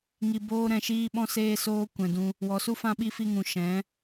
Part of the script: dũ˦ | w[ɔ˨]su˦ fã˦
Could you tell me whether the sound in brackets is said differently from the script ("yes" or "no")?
no